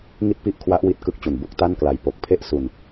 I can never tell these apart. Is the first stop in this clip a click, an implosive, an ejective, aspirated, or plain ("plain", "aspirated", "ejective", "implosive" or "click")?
plain